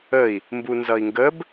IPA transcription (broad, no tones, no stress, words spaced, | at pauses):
əi̯ | mbunzʌi̯ŋɡəb